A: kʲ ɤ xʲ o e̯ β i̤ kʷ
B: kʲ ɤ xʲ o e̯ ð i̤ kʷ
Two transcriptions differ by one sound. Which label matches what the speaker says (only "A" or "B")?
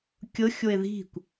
B